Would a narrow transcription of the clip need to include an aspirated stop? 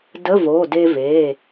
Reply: no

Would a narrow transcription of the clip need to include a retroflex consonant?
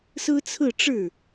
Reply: yes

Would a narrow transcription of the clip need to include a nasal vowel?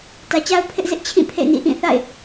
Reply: yes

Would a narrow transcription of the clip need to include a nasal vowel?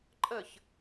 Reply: no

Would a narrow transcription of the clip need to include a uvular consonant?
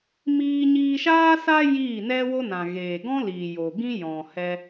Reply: no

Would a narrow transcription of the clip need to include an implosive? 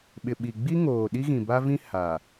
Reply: yes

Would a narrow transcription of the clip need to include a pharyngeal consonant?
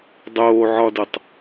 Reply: yes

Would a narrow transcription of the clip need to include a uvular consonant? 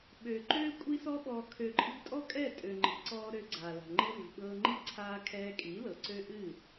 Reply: no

